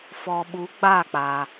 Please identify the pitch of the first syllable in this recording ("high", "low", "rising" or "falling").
low